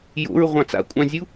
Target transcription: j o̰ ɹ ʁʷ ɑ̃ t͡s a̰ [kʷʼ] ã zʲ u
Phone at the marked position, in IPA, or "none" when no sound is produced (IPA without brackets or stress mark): kʷʼ